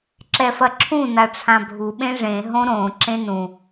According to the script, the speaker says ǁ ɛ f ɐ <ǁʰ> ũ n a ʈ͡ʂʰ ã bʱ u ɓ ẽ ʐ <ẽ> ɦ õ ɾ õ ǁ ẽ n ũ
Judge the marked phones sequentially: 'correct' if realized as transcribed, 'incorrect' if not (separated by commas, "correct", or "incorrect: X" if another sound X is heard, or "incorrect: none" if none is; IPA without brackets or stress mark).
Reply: correct, correct